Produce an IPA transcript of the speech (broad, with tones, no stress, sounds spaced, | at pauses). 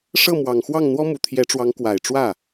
ʂ ɤ˥˩ m w ɑ˨˩ ŋ x w ɑ˥˩ ŋ n̪ w ɔ˥ m u˨˩ t̪ʰ j ɛ˧˥ ʈ͡ʂ w ɑ˧˥ ŋ k w a˨˩ ɪ̯ ʈ͡ʂ w ä˥˩